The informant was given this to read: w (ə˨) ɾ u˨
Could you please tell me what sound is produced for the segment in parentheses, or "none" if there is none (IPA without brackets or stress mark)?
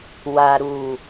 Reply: a˨